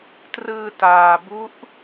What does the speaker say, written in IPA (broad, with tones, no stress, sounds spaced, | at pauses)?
t r ɯː˧ t aː˧ b u˦˥ ʔ